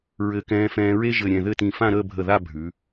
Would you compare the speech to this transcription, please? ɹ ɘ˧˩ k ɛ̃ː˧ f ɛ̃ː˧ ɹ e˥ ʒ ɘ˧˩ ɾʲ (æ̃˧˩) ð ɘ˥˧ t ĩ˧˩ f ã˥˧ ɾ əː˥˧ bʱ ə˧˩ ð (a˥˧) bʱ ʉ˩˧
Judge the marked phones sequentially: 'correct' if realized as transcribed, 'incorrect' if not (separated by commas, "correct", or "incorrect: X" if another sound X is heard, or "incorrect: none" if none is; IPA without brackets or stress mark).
incorrect: ɛ̃˧˩, correct